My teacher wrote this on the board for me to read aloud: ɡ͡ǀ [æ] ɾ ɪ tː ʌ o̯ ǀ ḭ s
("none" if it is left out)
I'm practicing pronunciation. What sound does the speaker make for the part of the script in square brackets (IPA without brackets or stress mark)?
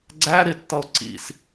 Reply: æ